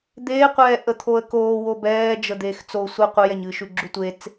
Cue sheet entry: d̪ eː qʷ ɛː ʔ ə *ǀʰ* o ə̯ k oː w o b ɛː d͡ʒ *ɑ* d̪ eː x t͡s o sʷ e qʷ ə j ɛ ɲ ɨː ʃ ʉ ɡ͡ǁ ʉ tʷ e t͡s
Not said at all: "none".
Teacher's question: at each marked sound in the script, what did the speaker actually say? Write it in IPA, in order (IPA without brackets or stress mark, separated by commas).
t̪ʰ, ə